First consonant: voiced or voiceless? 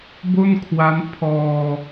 voiced